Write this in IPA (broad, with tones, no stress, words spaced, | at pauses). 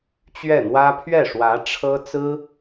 t͡ɕɥɛ˥˩n̪wä˥ pʰɥɛ˥˩ʂwä˧˥ ʈ͡ʂʰɤ˥ t͡sɹ̩˥